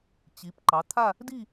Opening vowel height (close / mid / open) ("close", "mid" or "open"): close